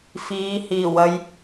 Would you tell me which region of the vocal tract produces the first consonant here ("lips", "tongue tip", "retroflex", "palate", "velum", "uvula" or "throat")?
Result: lips